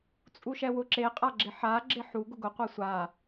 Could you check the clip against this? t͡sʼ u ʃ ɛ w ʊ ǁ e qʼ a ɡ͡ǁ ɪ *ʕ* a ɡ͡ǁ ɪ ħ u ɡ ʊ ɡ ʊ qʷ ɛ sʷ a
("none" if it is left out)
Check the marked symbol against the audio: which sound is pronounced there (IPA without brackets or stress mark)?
ħ